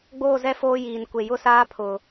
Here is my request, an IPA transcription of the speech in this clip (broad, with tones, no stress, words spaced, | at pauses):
ɡ͡boː˦˨zɛ˦ foː˦jiː˨n kʷe˨jʊ˦saː˦ pʰʊ˨